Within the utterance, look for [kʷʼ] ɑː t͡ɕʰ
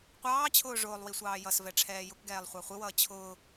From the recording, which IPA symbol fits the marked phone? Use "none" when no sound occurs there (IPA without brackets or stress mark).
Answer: qʷ